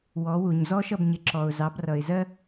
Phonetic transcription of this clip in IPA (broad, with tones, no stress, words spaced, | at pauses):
wɔ˩˥wu˩ɲ zɔ˥ʃʌ˥˩bɲɪ˩˥ ǁɔ˩ʊ̯ zɑ˩˥brʌ˩ɪ̯zɜ˥